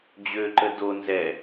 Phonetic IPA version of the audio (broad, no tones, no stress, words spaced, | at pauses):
d͡ʑøǃə do nzɛ